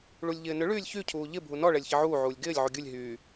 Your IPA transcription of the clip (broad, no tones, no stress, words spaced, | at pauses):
ɭulʲʎɪːnʏ ɭyːlʲçy cʰuːʎɪ bʱunɔ ɭɛlʲçɪʕuː ʕuːlʲɡɪːlʲ ʕuɡʲulʲ ɦyː